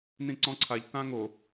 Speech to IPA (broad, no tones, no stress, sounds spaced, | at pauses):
n ĩ ǀ ɔ̃ ǀʰ a ʎ t ã ŋ o